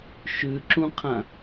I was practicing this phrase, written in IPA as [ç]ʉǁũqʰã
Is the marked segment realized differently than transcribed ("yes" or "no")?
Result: yes